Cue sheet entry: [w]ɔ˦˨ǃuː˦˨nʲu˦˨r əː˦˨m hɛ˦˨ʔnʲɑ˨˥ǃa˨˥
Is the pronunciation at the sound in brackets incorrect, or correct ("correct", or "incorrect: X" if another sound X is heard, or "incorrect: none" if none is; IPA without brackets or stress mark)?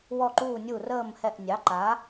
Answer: correct